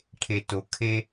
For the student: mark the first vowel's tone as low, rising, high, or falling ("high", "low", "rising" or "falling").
low